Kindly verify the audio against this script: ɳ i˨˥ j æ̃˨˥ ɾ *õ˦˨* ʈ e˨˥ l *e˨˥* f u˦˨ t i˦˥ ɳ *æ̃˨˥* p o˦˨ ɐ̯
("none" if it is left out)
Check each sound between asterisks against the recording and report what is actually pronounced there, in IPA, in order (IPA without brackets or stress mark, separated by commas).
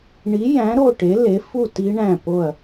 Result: o˦˨, e˨˥, æ̃˦˨